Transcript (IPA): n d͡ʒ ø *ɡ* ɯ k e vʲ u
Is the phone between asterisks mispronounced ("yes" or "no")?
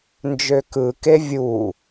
yes